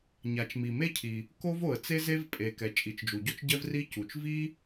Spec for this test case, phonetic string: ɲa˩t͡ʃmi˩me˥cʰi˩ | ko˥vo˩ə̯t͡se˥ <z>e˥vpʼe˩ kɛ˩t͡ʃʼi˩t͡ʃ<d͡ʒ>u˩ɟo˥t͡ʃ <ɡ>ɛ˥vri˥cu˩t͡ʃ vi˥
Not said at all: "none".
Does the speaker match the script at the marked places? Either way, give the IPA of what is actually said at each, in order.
z, d͡ʒ, ɟ

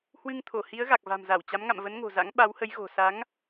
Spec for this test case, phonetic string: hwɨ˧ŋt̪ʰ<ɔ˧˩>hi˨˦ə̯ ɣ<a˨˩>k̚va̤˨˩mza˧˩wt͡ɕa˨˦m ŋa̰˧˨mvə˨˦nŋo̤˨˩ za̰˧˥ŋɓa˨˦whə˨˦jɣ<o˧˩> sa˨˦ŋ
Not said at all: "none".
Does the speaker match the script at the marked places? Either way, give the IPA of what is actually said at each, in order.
o˧˩, a˨˩, o̤˨˩

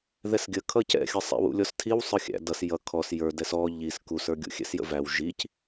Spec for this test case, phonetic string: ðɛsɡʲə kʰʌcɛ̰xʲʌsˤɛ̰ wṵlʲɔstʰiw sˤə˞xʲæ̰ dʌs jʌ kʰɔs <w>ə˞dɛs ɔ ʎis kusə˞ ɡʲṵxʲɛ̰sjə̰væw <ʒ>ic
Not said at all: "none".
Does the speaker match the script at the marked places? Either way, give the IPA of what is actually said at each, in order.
j, ʒ

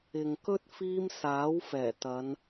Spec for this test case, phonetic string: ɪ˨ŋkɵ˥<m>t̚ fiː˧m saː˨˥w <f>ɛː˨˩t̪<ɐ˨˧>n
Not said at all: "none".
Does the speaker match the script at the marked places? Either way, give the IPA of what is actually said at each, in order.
none, f, ɐ˨˧

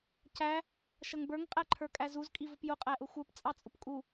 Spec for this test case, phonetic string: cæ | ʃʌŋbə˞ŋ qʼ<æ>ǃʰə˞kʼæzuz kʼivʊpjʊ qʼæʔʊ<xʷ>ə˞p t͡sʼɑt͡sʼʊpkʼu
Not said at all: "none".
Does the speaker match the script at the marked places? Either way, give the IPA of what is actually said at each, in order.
æ, xʷ

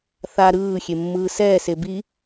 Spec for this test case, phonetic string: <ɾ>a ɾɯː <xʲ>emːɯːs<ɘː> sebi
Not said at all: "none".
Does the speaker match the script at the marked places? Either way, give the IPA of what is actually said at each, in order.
θ, xʲ, ɛː

